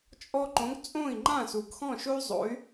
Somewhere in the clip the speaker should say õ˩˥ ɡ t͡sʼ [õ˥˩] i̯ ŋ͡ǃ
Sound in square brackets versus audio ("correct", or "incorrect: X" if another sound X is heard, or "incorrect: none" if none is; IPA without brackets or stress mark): correct